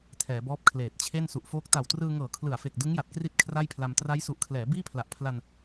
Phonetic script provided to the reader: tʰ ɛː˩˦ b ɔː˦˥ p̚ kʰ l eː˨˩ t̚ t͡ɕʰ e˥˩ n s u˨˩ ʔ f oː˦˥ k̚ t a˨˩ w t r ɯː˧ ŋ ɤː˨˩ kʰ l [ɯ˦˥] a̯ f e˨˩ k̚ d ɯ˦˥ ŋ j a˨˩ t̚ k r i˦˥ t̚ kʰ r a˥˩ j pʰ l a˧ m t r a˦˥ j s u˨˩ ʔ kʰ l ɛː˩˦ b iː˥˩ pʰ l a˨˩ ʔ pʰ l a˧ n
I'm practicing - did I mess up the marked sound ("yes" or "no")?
yes